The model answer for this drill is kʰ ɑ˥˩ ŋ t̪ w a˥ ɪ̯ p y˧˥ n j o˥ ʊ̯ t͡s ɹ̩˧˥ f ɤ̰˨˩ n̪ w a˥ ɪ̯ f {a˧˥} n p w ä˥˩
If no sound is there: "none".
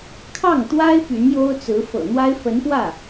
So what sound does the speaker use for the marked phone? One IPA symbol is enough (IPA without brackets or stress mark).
ə˧˥